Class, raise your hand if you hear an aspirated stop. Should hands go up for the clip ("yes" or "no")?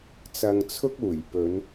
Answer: yes